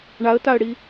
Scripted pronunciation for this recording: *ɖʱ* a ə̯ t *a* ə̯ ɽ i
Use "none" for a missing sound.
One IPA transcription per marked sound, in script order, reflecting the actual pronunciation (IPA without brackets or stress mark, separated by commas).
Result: ɳ, a